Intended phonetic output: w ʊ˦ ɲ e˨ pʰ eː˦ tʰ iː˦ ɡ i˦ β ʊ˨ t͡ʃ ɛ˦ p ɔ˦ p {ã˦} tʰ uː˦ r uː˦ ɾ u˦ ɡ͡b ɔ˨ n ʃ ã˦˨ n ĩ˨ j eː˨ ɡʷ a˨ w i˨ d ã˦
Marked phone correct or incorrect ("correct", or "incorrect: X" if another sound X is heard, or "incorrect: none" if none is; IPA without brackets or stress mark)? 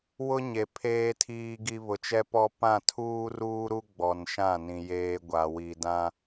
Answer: incorrect: ã˦˨